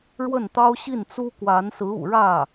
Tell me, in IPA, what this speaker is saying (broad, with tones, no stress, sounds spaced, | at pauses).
ɻ w ə˥˩ n t̪ ɑ˥ ʊ̯ ɕ i˥˩ n t͡s u˥ k w a˧˥ n s ɹ̩˧˥ ṵ˨˩ ɻ ä˥˩